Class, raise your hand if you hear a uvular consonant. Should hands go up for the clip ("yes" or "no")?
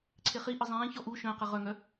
yes